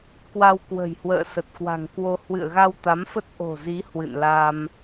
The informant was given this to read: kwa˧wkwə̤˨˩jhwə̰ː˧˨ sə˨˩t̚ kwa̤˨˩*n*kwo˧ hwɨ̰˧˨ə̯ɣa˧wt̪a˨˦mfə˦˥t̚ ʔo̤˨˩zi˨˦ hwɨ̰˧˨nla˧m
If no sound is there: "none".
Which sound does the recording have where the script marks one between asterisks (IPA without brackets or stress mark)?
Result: ŋ